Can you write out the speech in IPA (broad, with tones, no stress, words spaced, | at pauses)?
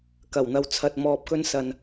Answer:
kɐ˨˩wn̪ɐ˧w t͡sʰɐ˧t̚ mɔː˧p̚kɵ˥n sɐ˧n